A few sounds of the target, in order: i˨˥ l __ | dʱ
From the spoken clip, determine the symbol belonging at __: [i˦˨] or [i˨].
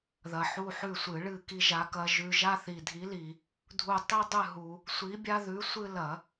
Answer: i˨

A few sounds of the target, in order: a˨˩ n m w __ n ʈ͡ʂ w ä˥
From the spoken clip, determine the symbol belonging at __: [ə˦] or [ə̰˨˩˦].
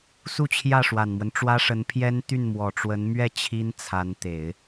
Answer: ə˦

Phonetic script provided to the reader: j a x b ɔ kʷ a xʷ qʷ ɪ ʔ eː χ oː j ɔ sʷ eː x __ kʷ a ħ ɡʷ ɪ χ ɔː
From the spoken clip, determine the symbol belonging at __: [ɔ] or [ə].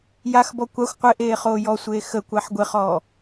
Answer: ə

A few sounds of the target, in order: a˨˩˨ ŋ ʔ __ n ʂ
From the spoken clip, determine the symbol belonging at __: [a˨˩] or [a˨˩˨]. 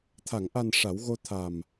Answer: a˨˩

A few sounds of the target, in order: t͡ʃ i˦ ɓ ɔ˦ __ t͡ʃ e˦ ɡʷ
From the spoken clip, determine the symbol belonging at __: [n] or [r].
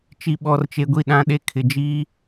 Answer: r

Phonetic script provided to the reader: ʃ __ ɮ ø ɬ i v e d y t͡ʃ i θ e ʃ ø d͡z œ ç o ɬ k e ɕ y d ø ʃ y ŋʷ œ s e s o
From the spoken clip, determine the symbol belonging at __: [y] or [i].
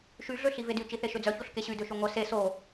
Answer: y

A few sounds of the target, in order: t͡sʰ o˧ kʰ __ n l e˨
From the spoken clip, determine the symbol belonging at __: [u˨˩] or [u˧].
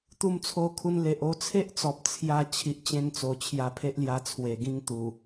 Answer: u˧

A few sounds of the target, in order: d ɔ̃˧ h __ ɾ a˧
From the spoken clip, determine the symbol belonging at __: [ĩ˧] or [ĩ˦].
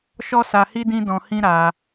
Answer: ĩ˦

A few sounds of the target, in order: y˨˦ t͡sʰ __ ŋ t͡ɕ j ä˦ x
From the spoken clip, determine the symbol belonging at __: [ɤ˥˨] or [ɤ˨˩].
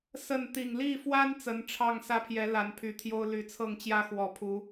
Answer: ɤ˥˨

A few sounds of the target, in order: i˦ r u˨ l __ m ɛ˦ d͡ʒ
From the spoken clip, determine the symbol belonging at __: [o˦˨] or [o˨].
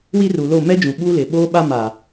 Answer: o˦˨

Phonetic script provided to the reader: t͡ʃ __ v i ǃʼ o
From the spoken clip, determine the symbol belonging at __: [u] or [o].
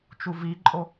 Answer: u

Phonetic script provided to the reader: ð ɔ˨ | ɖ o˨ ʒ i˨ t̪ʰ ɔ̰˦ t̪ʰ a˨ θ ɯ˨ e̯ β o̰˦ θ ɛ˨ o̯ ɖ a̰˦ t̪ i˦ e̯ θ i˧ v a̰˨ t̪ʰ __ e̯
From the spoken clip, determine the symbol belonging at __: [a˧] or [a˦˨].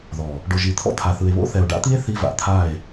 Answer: a˦˨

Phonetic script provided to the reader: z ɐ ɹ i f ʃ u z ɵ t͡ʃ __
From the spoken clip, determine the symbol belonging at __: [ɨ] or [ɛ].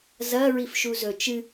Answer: ɨ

